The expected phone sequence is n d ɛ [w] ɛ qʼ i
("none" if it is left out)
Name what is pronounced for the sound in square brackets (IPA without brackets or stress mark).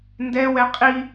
w